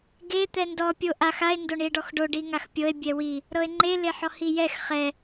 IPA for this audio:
ɡe t̪ɛndɔ pʲoʔax ae̯ ndoɳie̯ɖɔxɖo ɖiŋaxpʲɤe̯ bʲɛwi | ɾɤe̯ŋ͡ǃe leħɔhijɛx χɛ

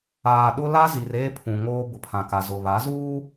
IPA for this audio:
aː˨ɗʊ˦ la˦ zi˨reː˦pʰũ˨ŋoː˦ bʊ˨pʰã˨ka˨ zʊ˨βa˨˦zuː˦

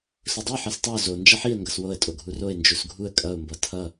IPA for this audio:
sʊdˤo ħʌstˤʌʊ̯ zo nd͡ʒʌħiə̯ ŋɡʌswoə̯ tʼoɡʱuroɪ̯ nd͡ʒusɡʱuə̯ kʼʌʊ̯ mbʌtʰʌ

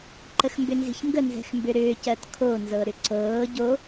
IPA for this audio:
ǃəxmbʏnzi̤çŋɡə nzɛ̤xmbʏɾʏːc ɜtkʰo nzɤɾʏǀɤː ɟo

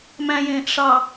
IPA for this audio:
mæ̃jẽːʔ ʂɑ

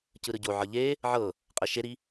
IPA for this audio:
cɯɾɯɟo ʕɤʎe | ʕɤ | qʼɛʃeɾi

